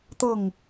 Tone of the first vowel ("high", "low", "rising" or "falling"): falling